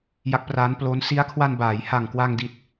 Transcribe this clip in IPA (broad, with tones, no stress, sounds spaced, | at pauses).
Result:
j a˦˥ k̚ p r aː˦˥ n p l o˦˥ n s i˦˥ a̯ kʰ w a˧ n b aː˩˦ j h a˨˩ ŋ k w a˧ ŋ d i˨˩ t̚